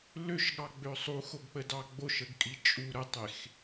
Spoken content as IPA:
l ø ʃ ɠ ɑ ɡ͡b ø sˤ u x o ɡ k͡p ə d ɑ ɡ͡b o ʃ ə ɡ kʼ i t͡ʃʼ u ɾ ə tˤ e x

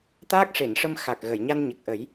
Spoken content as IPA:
t̪ aː˦˥ k̚ ʂ e˨˩˨ n ʂ ə˧ m x a˨˩ k̚ ɣ ə˨˩˨ j ɲ a˧ n ɲ ə˨˩ k̚ ʔ ə˨˩˦ j

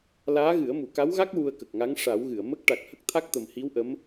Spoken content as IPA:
l aː˧˥ ɣ ɨ˨˩˦ ə̯ m u˨˩˨ k a˧˥ w ɣ a˦˥ k̚ w u˧ ə̯ k ə˨˩ k̚ ŋ a˧˥ ŋ ʂ a˨˩˦ w ɣ ɨ˨˩˨ ə̯ m ə˦˥ k̚ ʈ a˨˩ k̚ h ə˦˥ k̚ t̪ʰ a˦˥ k̚ t̪ ə˨˩ m h i˧˥ w ʔ ə˧˥ m

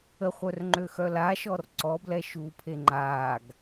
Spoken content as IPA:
ə χʷ œ r ŋ͡ǃ ø x œ l a ʃ ɔ r ǀ ɔ b l ɛ ʃ uː pʰ e ŋ͡ǃ aː ɡ

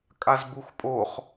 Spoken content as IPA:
kʼ a z b u x pʼ o χ

